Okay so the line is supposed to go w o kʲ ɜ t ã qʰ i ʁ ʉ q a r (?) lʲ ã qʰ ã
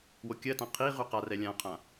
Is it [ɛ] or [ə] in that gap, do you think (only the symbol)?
ɛ